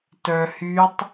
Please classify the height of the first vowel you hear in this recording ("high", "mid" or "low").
mid